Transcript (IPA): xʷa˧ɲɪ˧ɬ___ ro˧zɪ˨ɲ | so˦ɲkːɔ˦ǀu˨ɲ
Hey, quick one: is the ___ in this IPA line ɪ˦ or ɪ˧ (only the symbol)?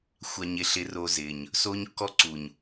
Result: ɪ˧